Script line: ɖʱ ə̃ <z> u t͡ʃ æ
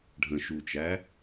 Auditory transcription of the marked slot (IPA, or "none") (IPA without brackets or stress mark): ʃ